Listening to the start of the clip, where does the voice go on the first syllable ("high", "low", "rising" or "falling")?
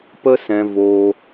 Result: high